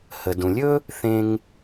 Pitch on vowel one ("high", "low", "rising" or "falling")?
low